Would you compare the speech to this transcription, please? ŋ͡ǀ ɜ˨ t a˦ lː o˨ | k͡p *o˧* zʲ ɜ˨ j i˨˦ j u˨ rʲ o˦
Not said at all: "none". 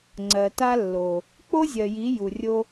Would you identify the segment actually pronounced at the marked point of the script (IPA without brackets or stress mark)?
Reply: o˦